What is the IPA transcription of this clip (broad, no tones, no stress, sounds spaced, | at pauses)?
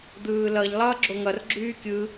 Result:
d̪ ɯː l ʌ ʎ lˠ ʌː ɡ͡ǁ o ŋ ʌ r ɡ͡ǁ yː kʲ ɯ